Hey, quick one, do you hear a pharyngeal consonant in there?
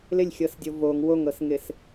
no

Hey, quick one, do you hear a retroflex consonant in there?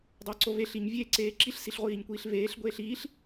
no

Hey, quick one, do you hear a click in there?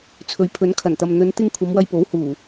no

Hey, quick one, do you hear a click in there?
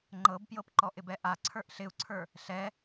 yes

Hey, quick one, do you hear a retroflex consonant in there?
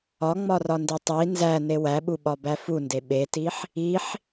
no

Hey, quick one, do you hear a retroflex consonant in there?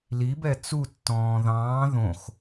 no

